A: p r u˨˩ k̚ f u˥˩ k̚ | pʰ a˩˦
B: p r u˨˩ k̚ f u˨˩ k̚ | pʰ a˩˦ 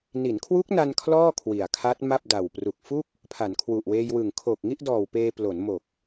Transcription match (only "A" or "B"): A